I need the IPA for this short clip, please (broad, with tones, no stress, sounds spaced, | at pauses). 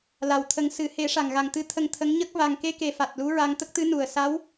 l a˨˩ w t̪ʰ ə˨˩˦ ŋ s ɨ˨˩˦ h e˨˩˦ ʂ a˨˩ ŋ ɣ a˨˩ ŋ t̪ ɨ˧˥ t̪ʰ ə˧ ŋ t̪ʰ ə˧˥ ŋ ɲ ə˦˥ k̚ v a˨˩ ŋ k e˧ k e˨˩ f a˨˩ t̚ l u˧˥ ɹ a˧ ŋ t̪ ə˦˥ k̚ t̪ ɨ˧˥ n u˨˩ ə̯ s a˧˥ w